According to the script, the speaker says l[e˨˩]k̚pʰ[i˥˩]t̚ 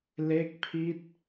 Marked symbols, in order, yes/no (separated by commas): no, no